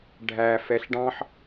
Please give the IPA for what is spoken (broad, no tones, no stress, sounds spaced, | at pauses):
ɖʱ æ f ɛ ɬ ɖ ɑ̃ ħ